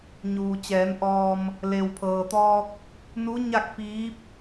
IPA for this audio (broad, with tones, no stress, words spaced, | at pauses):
ɲuː˩t͡ɕɛː˩˧nʔɔː˧m | le˩wpʰɤː˩t̪ɔː˧k̚ | nu˧˥ɲa˥˨k̚fiː˧˥p̚